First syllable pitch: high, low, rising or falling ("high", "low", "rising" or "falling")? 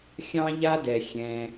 high